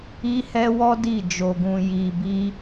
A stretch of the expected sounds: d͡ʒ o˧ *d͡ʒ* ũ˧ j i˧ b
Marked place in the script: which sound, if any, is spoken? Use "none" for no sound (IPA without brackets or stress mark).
ɡ